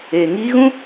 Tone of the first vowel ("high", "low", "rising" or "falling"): low